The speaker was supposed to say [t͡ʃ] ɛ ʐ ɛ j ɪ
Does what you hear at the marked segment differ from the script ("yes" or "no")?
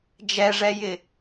yes